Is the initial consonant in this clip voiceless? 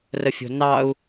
no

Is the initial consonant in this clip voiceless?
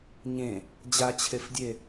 no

